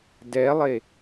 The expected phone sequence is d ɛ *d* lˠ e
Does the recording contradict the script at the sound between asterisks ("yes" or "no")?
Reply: yes